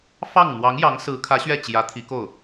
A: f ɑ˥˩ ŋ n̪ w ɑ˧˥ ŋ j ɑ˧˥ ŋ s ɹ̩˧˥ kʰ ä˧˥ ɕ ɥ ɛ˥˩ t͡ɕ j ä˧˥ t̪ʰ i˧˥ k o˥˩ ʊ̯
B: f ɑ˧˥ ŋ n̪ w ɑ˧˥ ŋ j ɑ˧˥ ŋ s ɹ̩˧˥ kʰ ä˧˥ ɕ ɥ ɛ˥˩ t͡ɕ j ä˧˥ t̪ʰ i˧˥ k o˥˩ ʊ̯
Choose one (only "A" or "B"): A